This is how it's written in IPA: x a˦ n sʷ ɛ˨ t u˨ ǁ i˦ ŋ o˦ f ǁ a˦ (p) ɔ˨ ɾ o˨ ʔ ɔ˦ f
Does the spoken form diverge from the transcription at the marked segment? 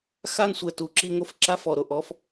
yes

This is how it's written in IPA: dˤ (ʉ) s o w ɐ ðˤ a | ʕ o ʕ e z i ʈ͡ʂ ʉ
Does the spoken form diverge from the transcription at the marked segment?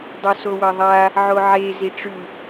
yes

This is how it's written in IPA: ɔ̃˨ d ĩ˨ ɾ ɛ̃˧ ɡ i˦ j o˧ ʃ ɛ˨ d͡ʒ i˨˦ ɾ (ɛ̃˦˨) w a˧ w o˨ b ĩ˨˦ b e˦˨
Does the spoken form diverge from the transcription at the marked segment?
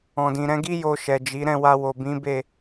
no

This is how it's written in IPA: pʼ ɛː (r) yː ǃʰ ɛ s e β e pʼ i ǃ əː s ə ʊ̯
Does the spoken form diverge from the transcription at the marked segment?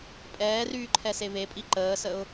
no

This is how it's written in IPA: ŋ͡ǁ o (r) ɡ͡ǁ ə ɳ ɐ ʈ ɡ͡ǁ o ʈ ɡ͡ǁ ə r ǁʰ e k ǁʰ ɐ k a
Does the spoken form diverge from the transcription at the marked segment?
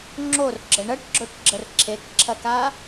no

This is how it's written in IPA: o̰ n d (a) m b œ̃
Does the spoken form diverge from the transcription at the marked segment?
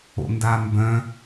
no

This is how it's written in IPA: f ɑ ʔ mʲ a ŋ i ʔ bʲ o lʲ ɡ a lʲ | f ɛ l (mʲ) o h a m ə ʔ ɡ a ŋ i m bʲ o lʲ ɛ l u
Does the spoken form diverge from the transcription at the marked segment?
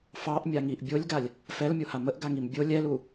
no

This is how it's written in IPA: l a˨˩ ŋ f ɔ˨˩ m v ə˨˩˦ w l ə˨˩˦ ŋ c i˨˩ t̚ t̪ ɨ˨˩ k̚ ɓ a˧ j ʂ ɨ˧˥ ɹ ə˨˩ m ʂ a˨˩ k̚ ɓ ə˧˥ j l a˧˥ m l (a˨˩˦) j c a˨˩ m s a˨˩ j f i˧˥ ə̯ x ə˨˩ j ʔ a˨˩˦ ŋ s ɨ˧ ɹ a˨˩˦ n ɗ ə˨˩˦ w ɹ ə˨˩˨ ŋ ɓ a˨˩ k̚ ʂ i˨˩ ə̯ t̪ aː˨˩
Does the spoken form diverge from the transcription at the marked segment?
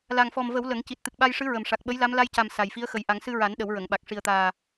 yes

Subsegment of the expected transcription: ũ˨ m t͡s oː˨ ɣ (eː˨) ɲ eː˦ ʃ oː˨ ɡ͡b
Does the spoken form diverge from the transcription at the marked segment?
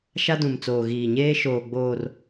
yes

